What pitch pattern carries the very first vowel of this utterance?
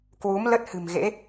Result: rising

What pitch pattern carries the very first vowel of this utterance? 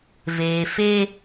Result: low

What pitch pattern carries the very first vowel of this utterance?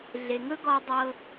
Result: low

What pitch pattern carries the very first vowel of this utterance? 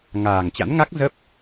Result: low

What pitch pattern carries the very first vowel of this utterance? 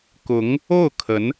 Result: rising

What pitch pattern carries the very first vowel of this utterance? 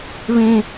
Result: high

